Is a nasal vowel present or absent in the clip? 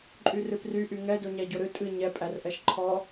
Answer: absent